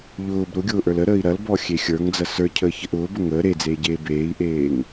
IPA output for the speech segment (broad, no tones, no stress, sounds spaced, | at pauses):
ʎ ʊː b ɾ ʊ ɡʲ ʊː ʔ ə˞ l ə ɾ əː i̯ ɾ ɐ l b ɔ xʲ e xʲ ə˞ ŋ d͡z ɐ s ə˞ cʰ əː ç ə ʔ ʊː b ə ŋ əː ɾ e d͡z eː ɟ eː b eː i̯ ʔ eː ŋ